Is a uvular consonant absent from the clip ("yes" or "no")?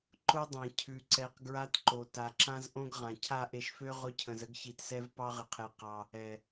no